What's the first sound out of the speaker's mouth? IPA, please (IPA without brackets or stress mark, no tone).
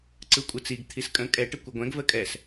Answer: ǀ